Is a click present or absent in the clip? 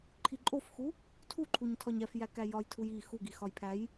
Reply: present